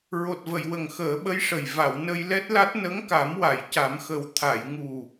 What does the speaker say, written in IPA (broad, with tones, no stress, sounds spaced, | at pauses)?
ɹ o˨˩ t̚ v ə˨˩˨ j w ə˨˩ ŋ x əː˨˩˦ ɓ ə˧˥ j ʂ ə˨˩ j v a˨˩˨ w n ə˧ j l ɛ˦˥ t̚ l a˦˥ t̚ n ə˧˥ ŋ k a˨˩˦ m w a˨˩˨ j c a˨˩˦ m x ə˨˩ w t̪ʰ a˨˩˨ j ŋ u˨˩